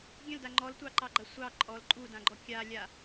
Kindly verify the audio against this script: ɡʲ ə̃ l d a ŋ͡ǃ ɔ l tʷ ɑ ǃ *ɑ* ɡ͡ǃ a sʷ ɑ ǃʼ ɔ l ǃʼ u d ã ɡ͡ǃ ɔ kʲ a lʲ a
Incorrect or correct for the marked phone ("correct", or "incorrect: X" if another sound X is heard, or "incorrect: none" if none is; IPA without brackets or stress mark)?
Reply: correct